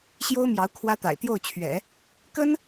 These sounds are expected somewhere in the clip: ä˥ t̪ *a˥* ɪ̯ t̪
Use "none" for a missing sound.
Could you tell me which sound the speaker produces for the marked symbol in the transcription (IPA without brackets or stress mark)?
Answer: a̰˨˩